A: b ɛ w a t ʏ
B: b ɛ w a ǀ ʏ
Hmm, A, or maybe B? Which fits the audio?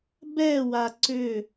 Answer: B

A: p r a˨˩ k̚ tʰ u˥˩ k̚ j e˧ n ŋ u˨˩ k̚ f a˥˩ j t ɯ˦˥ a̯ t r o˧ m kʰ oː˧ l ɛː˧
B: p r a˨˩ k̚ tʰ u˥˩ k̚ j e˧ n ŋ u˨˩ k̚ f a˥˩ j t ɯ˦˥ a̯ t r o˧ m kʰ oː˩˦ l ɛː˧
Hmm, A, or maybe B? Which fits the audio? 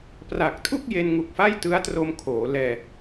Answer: B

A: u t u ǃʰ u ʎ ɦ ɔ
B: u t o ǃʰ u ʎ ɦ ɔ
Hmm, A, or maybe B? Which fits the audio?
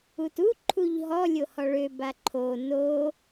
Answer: A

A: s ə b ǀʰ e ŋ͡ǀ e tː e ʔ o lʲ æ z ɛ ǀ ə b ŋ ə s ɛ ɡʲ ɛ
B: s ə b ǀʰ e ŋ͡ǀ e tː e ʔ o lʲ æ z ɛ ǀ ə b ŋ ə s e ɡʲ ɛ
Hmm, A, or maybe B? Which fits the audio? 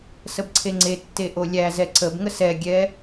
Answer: A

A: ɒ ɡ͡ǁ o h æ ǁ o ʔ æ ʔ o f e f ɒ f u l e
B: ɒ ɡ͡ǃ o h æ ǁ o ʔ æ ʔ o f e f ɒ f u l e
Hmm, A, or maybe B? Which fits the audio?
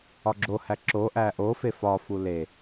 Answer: A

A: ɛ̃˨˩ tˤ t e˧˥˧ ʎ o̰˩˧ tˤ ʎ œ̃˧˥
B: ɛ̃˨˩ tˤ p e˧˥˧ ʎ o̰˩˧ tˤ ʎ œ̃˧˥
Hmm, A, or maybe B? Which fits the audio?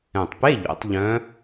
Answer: B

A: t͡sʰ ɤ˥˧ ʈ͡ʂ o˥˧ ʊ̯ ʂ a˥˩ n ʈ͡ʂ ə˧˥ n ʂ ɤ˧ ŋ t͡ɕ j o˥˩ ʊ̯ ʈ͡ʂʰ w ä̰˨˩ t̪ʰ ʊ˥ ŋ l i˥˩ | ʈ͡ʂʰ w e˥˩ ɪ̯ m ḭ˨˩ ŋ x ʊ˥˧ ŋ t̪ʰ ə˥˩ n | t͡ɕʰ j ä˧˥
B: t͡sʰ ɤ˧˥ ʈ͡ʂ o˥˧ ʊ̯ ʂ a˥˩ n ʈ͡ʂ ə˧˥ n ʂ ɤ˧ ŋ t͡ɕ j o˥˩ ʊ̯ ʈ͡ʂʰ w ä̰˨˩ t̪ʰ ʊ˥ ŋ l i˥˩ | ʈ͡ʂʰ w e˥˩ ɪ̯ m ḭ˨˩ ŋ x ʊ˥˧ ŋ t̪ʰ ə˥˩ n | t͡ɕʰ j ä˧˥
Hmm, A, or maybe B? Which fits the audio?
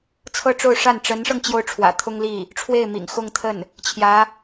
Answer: A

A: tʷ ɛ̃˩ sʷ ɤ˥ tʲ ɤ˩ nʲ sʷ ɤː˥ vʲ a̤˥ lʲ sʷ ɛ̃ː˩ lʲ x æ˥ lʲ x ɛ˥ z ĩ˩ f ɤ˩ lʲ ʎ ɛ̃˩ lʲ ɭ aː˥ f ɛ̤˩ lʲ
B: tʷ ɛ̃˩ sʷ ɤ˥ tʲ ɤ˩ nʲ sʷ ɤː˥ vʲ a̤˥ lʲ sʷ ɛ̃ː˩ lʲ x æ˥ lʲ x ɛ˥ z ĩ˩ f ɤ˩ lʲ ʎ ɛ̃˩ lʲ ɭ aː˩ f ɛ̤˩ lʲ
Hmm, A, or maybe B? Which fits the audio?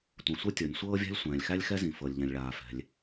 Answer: B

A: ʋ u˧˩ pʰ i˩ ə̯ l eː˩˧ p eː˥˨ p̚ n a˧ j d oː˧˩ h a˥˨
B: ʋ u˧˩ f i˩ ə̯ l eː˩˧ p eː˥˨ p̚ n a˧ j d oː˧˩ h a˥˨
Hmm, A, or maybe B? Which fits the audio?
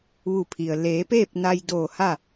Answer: A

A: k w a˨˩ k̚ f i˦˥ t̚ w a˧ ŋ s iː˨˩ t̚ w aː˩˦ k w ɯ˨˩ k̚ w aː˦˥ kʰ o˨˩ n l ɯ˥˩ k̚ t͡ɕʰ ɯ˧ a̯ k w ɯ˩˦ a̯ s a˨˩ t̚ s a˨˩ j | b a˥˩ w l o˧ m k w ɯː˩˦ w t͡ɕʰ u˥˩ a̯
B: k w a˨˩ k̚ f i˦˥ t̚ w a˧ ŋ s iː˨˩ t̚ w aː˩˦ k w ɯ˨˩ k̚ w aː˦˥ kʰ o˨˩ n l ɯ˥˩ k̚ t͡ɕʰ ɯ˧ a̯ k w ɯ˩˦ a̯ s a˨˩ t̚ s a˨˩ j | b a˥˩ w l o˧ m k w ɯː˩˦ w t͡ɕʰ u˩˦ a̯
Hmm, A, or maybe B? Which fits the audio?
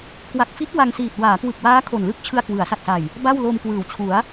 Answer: B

